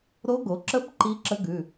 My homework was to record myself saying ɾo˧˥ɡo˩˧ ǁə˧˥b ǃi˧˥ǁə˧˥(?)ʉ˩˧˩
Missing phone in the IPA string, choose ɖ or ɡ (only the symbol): ɡ